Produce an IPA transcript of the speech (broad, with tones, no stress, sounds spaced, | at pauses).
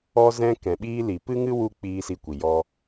ɔ˧ z ɛ̃˧ k ɛ̃˨ ɓ iː˧ l i˨ p ɨ˦ ŋ ɨ˦ w u˧ k͡p iː˧ s i˧ kʷ i˨ j ɔ˧